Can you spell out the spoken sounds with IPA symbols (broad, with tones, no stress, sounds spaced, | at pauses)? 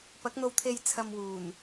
p ɐ˨˥ k̚ n̪ o˧ w t̪ʰ e˧ j t͡sʰ ɐ˧ m w uː˨˩ n